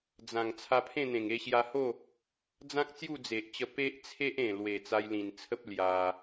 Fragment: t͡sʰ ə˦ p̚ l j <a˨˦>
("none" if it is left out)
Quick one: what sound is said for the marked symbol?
a˧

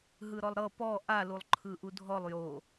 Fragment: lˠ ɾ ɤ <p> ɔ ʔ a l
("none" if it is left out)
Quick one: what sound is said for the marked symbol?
p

